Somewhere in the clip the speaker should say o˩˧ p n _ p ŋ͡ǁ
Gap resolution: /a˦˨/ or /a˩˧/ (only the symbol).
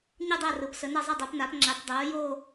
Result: a˩˧